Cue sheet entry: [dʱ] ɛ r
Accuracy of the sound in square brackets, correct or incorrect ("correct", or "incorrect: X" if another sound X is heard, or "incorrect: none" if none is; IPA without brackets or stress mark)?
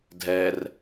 correct